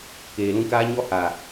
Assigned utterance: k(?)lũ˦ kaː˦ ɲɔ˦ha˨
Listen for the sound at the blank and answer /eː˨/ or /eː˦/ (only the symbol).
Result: eː˨